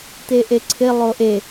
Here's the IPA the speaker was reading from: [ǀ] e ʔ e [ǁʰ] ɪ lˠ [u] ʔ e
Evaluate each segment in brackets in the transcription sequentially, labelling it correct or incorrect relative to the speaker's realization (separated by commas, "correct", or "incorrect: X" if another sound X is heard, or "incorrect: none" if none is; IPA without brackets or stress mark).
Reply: incorrect: t̪, incorrect: ǀʰ, incorrect: o